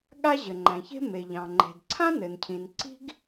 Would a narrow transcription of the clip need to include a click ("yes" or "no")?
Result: yes